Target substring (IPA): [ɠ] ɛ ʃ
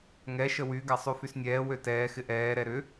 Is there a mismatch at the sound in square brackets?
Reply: yes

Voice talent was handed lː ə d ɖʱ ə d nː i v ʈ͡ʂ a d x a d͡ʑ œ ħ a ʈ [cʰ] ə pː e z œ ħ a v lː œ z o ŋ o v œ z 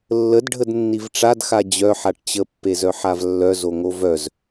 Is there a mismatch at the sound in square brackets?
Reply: yes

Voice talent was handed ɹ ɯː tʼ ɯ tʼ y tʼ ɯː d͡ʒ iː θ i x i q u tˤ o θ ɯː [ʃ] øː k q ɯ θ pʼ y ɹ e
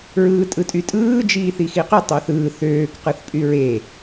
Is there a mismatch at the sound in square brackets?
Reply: yes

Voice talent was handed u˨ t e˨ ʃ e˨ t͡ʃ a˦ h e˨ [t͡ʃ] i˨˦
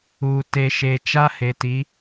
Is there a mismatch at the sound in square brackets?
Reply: yes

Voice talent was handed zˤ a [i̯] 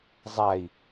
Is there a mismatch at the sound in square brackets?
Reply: no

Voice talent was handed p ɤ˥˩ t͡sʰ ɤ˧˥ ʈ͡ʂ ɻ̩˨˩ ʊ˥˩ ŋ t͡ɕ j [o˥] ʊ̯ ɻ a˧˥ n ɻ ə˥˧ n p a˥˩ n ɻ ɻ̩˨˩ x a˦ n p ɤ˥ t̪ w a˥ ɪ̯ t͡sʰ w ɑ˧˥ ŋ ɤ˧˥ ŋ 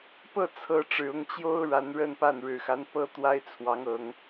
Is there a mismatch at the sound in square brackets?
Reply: no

